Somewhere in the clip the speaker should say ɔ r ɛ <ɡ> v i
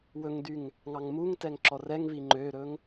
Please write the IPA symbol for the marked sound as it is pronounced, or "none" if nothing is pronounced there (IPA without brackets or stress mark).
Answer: ŋ